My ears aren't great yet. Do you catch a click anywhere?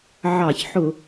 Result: no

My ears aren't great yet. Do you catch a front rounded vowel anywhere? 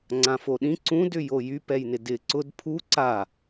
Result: yes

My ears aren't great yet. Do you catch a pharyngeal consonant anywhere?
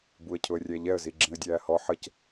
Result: yes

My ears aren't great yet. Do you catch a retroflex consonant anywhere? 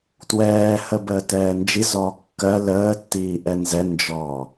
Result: no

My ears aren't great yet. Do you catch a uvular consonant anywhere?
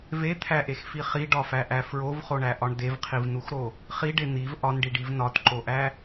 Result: yes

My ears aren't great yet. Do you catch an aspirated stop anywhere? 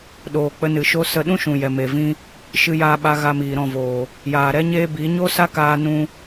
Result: no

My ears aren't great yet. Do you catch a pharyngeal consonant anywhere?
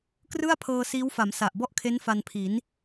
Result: no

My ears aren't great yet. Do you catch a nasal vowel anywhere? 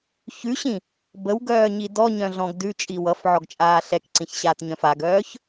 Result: yes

